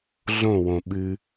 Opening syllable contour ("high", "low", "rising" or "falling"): falling